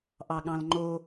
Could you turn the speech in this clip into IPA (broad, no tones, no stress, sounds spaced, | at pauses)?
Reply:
ʔ ɑ ɠ ɑ̃ l ŋ͡ǃ o